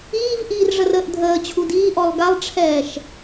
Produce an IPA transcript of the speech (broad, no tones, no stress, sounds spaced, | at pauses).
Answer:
iː v ʔ iː r ʐ ə r əː ʔ dʱ əː t͡ɕʰ u d iː ʔ ɔ lˠ ɡ a lˠ ʈ͡ʂʰ ɛː ʃ